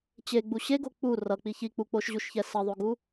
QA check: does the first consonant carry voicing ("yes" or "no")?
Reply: no